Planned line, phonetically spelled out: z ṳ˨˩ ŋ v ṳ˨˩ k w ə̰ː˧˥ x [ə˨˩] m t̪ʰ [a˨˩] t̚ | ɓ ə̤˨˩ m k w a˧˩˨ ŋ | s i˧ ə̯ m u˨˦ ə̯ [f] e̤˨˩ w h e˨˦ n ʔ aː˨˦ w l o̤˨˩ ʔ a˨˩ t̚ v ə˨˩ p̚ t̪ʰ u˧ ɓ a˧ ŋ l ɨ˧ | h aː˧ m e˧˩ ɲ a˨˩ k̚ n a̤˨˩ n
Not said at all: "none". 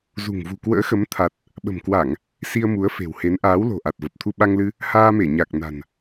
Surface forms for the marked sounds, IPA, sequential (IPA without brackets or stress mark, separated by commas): ə˨˦, a˨˩, f